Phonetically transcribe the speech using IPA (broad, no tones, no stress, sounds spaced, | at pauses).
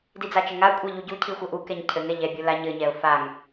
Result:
d i d͡z a t͡ʃ ɘ ŋ a kʷʼ ɛ ʎ u ɟ u cʰ i xʷ ɘ ʔ u k ɛ ɲ cʰ ɘ ŋ ɛ ʎ ɛ bʲ u l a ɲ ɘ ɲ ɛ ʊ̯ f a ŋ